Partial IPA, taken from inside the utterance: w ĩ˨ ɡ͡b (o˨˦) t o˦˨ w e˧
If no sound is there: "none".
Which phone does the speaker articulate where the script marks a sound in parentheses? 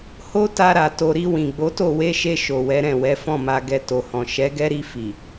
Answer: o˨˦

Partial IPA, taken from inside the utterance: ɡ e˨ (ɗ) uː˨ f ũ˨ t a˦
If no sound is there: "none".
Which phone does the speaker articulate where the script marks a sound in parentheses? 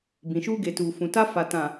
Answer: t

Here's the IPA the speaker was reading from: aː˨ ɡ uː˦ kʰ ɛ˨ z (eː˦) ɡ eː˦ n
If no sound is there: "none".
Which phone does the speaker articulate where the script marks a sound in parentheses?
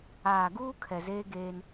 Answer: eː˦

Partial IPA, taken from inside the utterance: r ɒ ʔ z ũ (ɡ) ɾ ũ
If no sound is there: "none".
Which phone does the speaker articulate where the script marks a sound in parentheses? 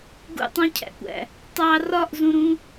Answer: none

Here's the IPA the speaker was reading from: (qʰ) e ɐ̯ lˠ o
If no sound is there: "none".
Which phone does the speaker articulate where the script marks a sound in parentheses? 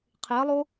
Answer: qʰ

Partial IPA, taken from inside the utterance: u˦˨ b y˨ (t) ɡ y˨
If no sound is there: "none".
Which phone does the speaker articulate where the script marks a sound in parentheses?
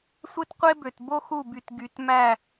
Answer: t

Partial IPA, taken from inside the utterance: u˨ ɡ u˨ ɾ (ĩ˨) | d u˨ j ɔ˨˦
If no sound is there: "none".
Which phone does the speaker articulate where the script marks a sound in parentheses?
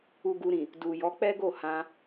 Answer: ĩ˨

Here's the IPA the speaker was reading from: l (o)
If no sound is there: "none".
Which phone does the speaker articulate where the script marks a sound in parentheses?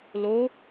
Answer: o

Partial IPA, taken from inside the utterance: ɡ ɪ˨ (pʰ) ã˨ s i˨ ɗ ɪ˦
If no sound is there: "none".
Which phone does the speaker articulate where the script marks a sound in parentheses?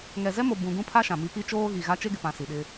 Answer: p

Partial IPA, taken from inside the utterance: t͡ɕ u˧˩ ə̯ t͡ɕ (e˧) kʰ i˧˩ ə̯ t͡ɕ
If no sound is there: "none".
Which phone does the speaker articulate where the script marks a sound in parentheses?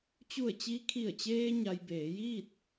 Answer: i˧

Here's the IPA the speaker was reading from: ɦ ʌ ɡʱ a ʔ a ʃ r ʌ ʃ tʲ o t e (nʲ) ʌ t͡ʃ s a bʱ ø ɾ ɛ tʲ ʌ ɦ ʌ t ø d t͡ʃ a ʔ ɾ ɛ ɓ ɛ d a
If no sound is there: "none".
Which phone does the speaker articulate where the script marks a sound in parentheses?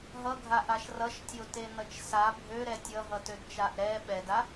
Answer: n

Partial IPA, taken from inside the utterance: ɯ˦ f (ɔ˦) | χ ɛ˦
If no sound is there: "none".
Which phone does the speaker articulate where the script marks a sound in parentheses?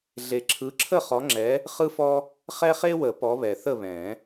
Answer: ɔ˦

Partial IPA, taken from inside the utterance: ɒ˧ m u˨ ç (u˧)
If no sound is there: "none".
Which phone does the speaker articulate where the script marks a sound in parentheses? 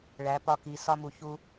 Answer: u˧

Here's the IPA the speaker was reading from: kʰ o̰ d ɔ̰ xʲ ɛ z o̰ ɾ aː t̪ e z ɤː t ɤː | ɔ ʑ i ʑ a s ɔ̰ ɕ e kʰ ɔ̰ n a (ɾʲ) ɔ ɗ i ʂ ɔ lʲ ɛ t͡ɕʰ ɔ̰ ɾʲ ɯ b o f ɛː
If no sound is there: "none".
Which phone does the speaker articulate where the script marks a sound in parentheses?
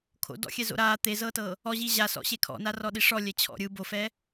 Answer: r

